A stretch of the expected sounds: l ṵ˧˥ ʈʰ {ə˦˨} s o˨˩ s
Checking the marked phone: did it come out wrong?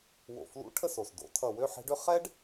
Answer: no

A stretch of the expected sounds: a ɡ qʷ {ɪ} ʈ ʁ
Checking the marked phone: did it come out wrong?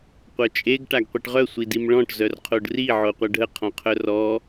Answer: yes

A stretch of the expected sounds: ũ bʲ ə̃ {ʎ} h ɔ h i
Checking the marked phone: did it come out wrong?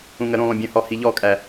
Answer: yes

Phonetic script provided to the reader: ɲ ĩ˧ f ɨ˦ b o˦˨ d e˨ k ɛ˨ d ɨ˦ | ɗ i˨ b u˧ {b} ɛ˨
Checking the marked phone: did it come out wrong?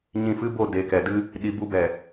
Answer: no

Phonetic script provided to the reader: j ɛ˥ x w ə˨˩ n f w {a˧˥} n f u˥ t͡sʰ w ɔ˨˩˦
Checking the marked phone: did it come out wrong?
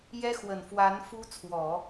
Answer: no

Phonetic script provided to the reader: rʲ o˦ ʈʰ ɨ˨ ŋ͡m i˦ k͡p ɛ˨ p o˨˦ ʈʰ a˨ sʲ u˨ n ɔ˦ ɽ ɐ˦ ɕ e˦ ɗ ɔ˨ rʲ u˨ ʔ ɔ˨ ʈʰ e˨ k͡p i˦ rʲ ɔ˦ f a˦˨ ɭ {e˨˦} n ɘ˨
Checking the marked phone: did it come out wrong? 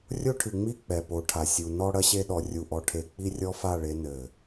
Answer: no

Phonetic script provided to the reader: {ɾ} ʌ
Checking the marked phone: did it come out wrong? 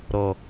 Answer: no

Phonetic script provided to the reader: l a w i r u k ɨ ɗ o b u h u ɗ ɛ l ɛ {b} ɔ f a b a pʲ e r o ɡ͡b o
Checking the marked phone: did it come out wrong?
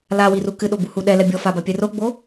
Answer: yes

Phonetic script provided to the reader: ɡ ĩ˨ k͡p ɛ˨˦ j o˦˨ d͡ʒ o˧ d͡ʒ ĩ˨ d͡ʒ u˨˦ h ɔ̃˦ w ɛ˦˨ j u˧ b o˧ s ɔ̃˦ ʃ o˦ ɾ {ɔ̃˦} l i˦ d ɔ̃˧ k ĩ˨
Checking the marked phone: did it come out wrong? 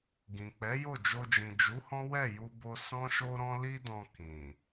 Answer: no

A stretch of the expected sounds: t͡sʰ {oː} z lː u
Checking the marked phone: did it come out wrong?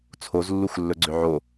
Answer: yes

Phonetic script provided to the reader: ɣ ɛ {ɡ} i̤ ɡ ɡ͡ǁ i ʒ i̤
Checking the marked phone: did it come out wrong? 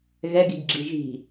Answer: no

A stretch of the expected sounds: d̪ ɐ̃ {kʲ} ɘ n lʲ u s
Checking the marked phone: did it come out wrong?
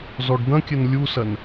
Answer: no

